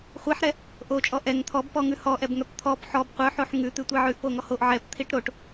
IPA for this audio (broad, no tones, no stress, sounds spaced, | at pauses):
χʷ i ħ ɾ ɛ | ʔ o t͡ʃʼ ɔ ʔ ɛ ŋ t̪ʰ ɔ b p ɔ ŋ ʉ h ɔ ʔ ɛ b ŋ œ p t̪ʰ ɔ p ħ ɔ b qʷ œ ħ o ħ ŋ ʉ t̪ ʉ tʷ i ʕ ʉ ʔ p o ŋ ɔ h o ʔ ʕ ɛ p t̪ʰ i ʈ ɾ o ʈ